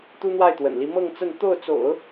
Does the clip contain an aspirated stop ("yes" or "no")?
no